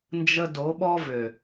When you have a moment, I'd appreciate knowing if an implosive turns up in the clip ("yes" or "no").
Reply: yes